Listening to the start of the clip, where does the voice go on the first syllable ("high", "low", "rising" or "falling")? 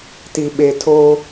low